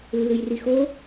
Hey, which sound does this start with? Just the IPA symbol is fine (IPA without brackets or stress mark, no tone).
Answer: lː